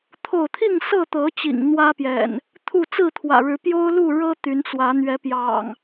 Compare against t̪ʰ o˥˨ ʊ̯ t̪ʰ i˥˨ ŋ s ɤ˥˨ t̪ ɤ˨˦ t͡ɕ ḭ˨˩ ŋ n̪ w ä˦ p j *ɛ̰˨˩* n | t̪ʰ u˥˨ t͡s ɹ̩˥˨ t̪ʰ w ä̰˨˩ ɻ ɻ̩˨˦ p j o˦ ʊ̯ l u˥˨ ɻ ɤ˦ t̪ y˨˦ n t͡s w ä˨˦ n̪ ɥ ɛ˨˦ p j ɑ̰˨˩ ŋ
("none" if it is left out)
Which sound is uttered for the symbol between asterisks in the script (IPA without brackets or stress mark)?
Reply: ɛ̰˨˩